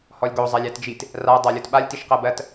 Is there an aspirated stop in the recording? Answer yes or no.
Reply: no